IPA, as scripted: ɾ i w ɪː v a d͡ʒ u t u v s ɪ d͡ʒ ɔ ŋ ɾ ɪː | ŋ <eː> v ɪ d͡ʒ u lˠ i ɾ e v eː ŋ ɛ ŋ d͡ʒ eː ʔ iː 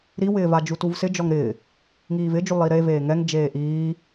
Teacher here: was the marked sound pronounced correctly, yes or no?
no